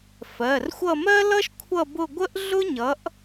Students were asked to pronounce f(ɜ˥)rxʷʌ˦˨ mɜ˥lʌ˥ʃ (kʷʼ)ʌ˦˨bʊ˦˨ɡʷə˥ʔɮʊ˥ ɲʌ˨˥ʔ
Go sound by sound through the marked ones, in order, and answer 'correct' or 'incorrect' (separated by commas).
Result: incorrect, incorrect